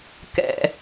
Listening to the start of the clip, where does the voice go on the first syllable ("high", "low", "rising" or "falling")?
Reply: low